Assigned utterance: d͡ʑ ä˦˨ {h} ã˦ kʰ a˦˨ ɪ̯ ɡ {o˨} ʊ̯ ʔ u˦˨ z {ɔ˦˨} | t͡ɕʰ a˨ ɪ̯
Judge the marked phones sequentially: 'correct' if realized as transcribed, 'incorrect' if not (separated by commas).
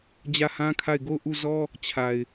correct, incorrect, incorrect